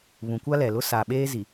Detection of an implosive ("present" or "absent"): present